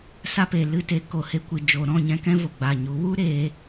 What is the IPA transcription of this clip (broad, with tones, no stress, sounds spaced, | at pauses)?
s a˧ p e˨ l ɨ˨ t e˨˦ k o˨ h e˧ kʷ ɨ˨ d͡ʒ o˨ ɾ ɔ̃˦˨ ɲ ɛ̃˧ k ɛ̃˦ v o˨ ɡ͡b a˨ ɲ u˨˦ w u˦ ɾ eː˧